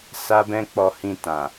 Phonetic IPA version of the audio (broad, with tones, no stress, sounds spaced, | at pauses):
s a˦ b ɛ̃˦ k͡p ɔ˧ h ĩ˧ t ã˨